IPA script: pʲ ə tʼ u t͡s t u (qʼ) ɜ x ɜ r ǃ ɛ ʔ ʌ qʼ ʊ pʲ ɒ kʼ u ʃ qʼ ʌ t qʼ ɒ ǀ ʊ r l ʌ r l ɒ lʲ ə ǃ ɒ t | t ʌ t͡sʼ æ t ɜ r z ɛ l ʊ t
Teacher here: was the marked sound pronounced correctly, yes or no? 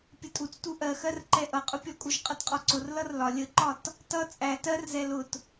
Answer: no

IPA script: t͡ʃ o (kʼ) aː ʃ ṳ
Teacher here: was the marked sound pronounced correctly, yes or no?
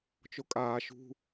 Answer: yes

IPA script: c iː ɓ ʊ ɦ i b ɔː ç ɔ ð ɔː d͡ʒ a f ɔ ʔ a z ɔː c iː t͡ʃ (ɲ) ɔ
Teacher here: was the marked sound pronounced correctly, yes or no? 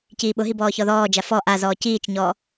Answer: yes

